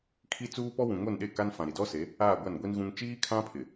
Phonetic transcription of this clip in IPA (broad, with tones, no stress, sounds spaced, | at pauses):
kʰ i˦ t͡s uː˦ p ɔ˦ w ũ˨ ŋ o˦˨ n ɗ e˦˨ k a˦ n f ã˨ ɾ i˨ d ɔ˦ s e˨˦ | aː˦˨ ɡʷ a˦˨ n ɡʷ i˦ n ɣ ũ˦ ŋ t͡ʃ iː˦ kʰ ã˦ pʰ ɪ˨